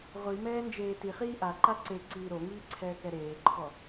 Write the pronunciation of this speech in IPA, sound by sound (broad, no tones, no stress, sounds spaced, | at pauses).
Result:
ʁʷ i m ɛː n d͡ʒ eː t i χ iː ʔ a ǃ a ǀ e ǀ iː ɾ o ŋ iː ǀʰ ɛː k ɛ ɾ eː ǃʰ ɔ